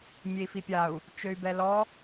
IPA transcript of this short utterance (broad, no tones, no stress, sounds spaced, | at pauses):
mʲ e i̯ f i pʲ a u̯ | t͡ʃ ø y̯ b ɛ l ɔ